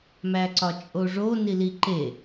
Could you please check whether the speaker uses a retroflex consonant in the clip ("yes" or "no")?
yes